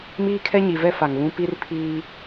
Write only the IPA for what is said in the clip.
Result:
m iː˦ kʰ ɛ˦ ɲ i˨ v ɛ˦ f a˨ ŋ β ũ˦ p i˦ r pʰ iː˦

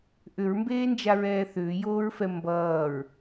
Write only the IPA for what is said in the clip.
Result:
ʔ ʏ ɹ m b eː n d͡ʒ a ɹ ɛː θ ʏː j oː ɹ f ɛ m b ʌː ɹ

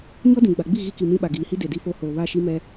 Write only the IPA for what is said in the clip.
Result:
ɲ ɔ˦ d ĩ˨ ɡ͡b a˨ ɡ͡b i˦˨ ɣ i˦ k i˨ m ĩ˦ ɓ a˨ ɡ iː˨ h i˦ d e˨ d i˦ f o˦ h oː˨ β a˦˨ ʃ i˦ m ɛ˦

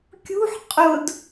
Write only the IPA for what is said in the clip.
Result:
kʲ ṳ ħ qʼ ʊ d

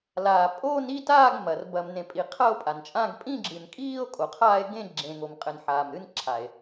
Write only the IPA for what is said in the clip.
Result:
l aː˨ pʼ o˥˧ n i˥˧ t aː˥˧ ɡ m ɐ˨ r b ɐ˨ m n ẽ˨ pʼ i˨ qʰ ɐ˥˧ o̯ pʼ a˨ n t͡ʃʼ ã˥˧ ɡ pʼ ĩ˥˧ ɡ͡ǁ ɨ˨ n kʼ iː˥˧ o̯ kʼ o˨ qʰ aː˥˧ e̯ ɡ ẽ˥˧ ɡ͡ǁ ẽ˨ ŋ o˨ m qʼ ɘ˨ n ħ aː˨ m ɾ ɨ˥˧ n ǁʰ a˨ e̯

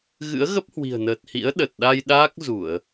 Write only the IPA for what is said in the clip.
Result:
ɣ ɨ̰˧˥ ə̯ ɣ ə˦˥ p̚ h w i̤˨˩ ə̯ n əː˨˩ t̚ h ḭ˧˥ ə̯ ɗ ə˨˩ t̚ ɗ a˧ j ɗ aː˦˥ k̚ z u˧˩˨ ə̯

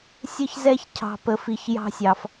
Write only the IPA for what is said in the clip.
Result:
sʲ ə˥ ç z ɛ˥ ç cʰ ɑ̤˧ p ə˧ f i˧ ç j ɑ̤˥ sʲ ɑ˧ f

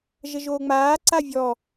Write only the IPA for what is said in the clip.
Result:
ʒ ə ʒ oː ŋ͡m aː ǀ a vʲ ɔ

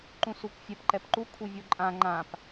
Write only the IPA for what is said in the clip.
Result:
ǃ ũ s u kʷ fʲ ɛ p ǃ ɛ p ǃ u kʷʰ i vʲ o ǃʼ ã ŋ͡ǃ ã p

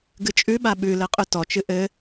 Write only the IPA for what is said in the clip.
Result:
ɡ ɨ t͡ʃʼ ʉ ɓ a ɓ ʉ l ɘ qʼ ʉ t ɔ t͡ʃ ɨ ʔ ɘ

